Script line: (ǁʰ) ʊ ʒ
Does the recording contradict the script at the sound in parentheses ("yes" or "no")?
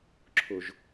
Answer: no